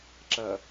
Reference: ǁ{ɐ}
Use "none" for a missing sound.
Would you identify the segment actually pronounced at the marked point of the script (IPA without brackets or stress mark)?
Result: ɐ